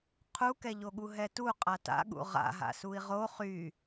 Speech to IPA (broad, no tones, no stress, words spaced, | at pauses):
qʰukɛʎoɠu ɦɛtu qʼata̰ɠṵ ʁa̰ɦa̰sui̯ ʁo χy